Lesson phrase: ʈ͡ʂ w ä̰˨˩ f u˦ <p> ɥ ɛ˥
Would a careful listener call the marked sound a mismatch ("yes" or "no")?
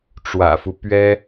no